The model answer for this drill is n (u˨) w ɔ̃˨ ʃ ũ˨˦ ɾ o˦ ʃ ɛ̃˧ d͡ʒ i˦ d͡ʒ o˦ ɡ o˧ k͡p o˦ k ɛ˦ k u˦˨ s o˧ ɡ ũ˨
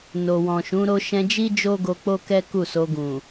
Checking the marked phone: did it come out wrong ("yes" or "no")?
yes